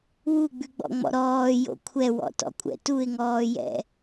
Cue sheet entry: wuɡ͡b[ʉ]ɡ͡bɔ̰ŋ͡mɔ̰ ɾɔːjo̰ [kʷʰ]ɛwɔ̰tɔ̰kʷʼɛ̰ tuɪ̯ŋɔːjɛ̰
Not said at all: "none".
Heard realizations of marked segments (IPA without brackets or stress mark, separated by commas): ʉ, kʷʰ